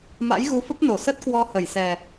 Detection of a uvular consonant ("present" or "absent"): absent